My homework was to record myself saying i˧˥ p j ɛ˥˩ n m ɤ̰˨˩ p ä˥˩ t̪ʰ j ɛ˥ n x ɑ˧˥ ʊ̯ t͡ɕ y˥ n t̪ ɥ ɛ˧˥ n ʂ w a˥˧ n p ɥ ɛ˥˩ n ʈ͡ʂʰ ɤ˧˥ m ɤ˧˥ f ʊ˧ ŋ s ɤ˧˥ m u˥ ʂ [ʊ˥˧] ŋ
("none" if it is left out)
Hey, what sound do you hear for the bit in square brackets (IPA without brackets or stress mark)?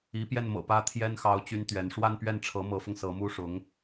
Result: ʊ˧˥